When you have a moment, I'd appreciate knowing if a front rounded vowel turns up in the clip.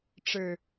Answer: no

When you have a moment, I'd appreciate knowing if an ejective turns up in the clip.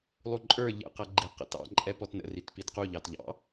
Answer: yes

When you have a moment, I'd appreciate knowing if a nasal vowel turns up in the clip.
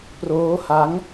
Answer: no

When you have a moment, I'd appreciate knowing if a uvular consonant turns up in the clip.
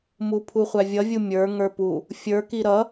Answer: yes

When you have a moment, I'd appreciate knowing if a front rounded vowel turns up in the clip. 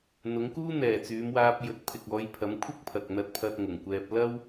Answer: yes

